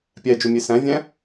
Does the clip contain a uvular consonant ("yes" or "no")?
no